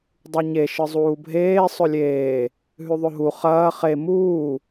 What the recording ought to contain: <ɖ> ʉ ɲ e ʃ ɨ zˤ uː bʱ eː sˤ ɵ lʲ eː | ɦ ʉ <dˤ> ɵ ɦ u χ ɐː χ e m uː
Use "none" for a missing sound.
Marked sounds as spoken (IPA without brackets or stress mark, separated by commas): dˤ, ðˤ